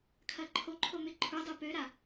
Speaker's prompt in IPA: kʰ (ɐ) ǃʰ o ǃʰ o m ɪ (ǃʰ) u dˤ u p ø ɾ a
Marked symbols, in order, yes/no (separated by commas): yes, yes